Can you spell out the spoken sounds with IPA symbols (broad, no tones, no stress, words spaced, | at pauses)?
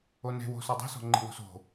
one̤wo̤ sɔdˤe̤sɔ̤ŋ͡ǃi̤ wo̤so̤